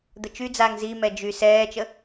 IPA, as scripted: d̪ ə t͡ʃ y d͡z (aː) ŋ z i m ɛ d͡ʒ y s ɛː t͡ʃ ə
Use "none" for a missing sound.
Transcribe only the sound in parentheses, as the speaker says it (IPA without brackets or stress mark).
aː